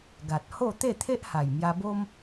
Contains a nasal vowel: no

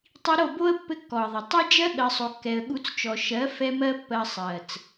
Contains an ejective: no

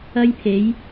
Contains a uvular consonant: no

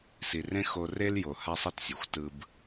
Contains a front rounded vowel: no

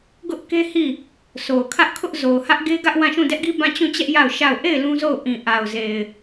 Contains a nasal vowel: yes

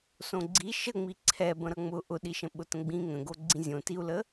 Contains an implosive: yes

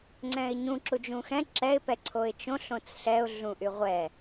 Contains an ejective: no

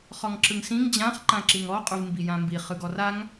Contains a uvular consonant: yes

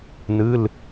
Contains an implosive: no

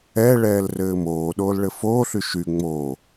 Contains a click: no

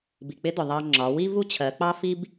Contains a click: yes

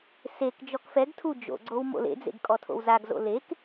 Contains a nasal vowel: no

